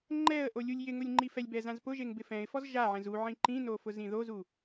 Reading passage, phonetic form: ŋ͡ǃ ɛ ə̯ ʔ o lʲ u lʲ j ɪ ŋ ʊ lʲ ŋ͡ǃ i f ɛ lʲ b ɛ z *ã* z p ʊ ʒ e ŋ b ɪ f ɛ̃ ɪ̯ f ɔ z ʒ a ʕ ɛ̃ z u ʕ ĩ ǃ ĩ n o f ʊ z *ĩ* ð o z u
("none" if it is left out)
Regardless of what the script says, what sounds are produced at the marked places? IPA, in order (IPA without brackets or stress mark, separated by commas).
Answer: ã, ĩ